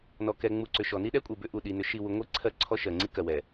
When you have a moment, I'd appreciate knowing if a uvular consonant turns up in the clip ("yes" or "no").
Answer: no